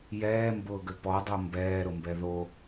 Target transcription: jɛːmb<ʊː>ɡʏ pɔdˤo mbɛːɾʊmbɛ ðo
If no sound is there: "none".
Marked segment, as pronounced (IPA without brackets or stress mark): ʊː